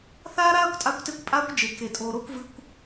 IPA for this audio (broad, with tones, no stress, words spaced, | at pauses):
θaː˦ɾaː˦kʷtʼa˧kʷte˧kʷ pʼaː˦kʷd͡ʒe˨ke˨ tʼoː˨ɾo˧kʷ vɨ˧kʷ